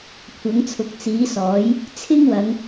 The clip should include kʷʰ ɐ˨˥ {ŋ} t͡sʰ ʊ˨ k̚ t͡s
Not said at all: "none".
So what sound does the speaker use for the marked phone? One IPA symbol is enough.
ŋ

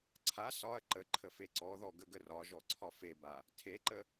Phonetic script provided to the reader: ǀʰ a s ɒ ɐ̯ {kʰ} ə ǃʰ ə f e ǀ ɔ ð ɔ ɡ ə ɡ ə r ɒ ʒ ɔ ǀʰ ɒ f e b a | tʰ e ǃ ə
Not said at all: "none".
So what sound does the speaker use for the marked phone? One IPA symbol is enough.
ǃ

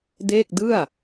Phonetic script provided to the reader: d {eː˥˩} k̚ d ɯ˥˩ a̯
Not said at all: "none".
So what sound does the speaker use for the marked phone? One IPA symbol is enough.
e˥˩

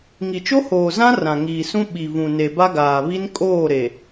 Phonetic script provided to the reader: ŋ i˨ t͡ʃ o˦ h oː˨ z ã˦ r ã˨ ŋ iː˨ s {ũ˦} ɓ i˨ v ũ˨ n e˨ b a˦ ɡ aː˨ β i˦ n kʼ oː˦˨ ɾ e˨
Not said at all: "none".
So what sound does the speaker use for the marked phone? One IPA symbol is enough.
ũ˦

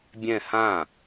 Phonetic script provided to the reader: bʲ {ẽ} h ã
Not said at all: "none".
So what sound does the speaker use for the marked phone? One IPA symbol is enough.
ɛ̃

